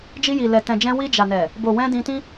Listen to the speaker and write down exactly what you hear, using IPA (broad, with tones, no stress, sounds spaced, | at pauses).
d͡ʒ i˧ j i˨ l ɛ˨ t ɛ̃˨ d͡ʒ ɛ̃˧ w i˧ d͡ʒ a˨ n ɛ˨ | b o˨ w ɛ̃˧ d ĩ˧ t ĩ˦